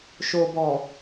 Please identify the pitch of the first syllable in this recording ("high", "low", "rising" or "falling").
low